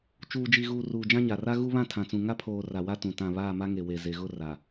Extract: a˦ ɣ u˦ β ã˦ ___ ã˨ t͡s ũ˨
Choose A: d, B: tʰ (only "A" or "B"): B